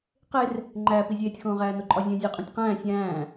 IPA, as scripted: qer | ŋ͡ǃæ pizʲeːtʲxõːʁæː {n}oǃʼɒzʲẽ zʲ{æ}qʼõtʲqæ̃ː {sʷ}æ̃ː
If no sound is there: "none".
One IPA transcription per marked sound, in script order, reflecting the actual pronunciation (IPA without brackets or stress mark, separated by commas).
n, æ, sʲ